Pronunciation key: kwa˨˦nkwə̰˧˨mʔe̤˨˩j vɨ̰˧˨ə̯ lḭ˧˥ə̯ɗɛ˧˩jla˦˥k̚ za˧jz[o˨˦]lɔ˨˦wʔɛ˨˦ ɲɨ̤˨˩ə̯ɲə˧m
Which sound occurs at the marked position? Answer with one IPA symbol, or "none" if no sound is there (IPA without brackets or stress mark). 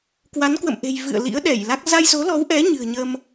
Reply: o˨˦